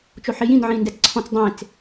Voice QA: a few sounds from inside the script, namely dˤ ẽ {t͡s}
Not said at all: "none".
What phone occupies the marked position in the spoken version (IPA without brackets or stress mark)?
t͡s